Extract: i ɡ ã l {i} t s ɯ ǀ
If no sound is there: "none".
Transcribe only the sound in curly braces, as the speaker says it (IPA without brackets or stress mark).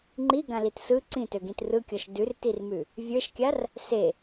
i